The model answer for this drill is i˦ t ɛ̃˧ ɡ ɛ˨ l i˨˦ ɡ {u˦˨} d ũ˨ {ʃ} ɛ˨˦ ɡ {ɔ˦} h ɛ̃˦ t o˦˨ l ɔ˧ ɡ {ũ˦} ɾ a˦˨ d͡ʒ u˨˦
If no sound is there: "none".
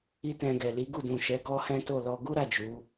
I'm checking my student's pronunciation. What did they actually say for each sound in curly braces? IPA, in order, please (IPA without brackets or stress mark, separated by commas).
u˦˨, ʃ, ɔ˦, u˦